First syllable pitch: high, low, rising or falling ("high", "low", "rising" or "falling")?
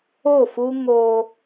falling